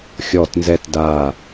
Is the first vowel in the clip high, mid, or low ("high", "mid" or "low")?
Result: mid